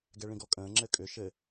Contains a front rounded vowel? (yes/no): yes